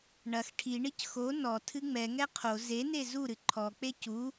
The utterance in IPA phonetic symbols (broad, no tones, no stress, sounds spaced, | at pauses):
ɳ ɐ x ʈʰ i ɳ i c x o n ɔ tʰ ɨ ŋ͡m ɛ ŋ ɛ qʰ o z e n e z u ɾ ɨ ǃʰ ɔ k͡p e c u